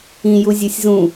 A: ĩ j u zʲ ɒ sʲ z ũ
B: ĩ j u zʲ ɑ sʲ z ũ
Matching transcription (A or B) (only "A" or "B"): A